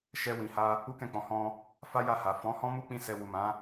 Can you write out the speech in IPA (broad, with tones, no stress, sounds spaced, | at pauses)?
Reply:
ʃ ɛ˧ w ĩ˨ h a˧ | u˦ k ɛ̃˦˨ k͡p ɔ̃˨˦ h ɔ̃˧ | f a˦ j a˦˨ h a˨ f ɔ̃˨˦ h ɔ̃˦ m u˦ k͡p ĩ˦ s ɛ˧ w u˨ m ã˨˦